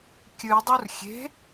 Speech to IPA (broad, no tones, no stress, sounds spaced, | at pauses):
kʲ ɨ dˤ u r xʲ e̤